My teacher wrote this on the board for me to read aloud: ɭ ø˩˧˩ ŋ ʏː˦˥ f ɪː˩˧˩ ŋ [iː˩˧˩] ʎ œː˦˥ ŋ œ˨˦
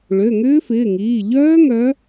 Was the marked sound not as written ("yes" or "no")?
no